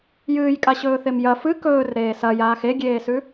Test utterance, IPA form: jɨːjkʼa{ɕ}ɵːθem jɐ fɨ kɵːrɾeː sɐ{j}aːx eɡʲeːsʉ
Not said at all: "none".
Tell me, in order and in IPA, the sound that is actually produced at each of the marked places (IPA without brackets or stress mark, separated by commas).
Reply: ɕ, j